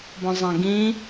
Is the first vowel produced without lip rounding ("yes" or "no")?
no